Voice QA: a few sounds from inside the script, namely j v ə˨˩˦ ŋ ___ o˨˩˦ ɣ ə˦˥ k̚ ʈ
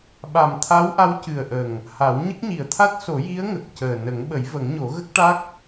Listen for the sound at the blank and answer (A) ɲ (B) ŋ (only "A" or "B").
A